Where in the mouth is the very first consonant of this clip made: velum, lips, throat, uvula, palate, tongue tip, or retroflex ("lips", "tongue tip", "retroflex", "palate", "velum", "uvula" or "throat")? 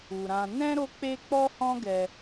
tongue tip